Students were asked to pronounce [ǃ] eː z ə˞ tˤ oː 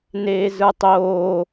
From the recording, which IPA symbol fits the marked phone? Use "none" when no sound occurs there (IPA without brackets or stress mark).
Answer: n